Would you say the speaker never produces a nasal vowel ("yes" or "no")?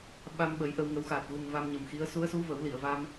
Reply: yes